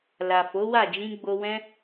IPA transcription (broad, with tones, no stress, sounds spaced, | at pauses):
l a˨ f o˨˦ w a˦˨ d͡ʒ ĩ˧ ɡ͡b o˧ w ɛ̃˦